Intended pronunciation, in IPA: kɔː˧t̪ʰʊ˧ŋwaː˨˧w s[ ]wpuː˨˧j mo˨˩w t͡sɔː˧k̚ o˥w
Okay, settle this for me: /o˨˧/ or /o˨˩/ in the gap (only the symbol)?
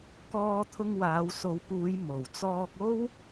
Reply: o˨˧